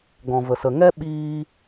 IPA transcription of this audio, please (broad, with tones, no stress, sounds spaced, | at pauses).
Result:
ɡ ɔ̃˨ v ə˨ s ə˨ ŋ ɛ˦ ɓ iː˧